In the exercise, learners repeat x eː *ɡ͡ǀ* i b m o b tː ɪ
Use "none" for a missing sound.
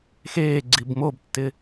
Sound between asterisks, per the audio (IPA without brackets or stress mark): ɡ͡ǀ